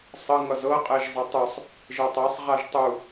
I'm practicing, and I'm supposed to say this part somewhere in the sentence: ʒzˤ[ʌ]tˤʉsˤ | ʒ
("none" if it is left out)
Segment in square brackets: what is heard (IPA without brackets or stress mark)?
ʌ